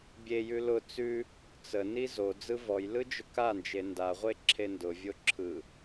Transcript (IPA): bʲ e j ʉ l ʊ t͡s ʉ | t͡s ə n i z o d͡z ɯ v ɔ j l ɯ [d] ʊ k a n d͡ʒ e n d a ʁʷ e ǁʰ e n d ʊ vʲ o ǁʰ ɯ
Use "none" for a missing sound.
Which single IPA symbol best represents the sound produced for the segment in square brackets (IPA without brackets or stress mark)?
d͡ʒ